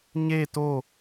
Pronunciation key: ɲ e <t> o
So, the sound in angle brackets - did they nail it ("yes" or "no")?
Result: yes